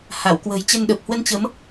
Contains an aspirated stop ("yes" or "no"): no